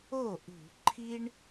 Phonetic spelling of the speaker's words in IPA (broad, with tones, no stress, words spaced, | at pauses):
o˥˩ʔṳ˧˩˧ ǃʰi˦ɳ